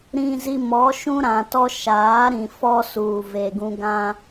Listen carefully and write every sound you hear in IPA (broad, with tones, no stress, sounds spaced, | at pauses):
ɾ ĩ˨ z i˨ m ɔ˨˦ ʃ ũ˦ ɾ ã˨ t ɔ˦ ʃ aː˨˦ ɾ ĩ˨ f ɔ˦ s uː˨ v e˨ ɡ ũ˦ ɡ ã˦